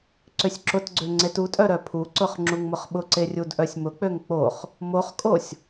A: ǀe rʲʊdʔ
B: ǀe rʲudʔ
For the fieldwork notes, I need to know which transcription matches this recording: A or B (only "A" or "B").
B